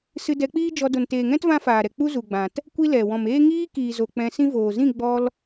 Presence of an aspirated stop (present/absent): absent